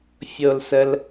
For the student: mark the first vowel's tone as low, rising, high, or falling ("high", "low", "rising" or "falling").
low